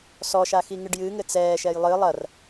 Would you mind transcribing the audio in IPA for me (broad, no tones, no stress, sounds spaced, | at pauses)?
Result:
s ɔ ʃ a x i ŋ ɨ ɖ j ɨ ŋ ɘ t͡s ɛː ʃ ɛ j lˠ ɨ lˠ ɐ r